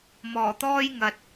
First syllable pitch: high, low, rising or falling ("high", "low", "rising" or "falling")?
low